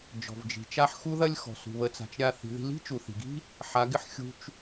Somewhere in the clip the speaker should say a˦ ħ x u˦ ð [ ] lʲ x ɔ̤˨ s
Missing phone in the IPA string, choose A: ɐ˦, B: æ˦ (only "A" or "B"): A